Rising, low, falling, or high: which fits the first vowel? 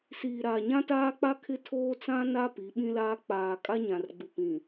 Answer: low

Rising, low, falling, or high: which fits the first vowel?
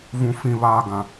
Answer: high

